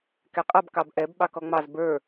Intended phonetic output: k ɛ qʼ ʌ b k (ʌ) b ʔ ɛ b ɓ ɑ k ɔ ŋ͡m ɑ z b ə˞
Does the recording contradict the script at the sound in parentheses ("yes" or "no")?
yes